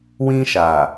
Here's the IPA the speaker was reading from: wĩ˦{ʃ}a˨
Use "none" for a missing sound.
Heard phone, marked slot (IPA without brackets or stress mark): ʃ